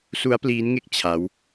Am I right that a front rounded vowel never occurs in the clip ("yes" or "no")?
yes